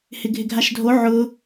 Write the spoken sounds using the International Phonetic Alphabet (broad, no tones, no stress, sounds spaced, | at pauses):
h ɪ ɡʱ ɪ ɡʱ a ʃ dʱ o ʕ ʊ